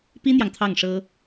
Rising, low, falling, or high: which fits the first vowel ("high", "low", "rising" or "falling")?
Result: high